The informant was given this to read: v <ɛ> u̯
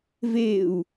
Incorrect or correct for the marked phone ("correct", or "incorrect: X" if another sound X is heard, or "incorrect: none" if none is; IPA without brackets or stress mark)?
incorrect: e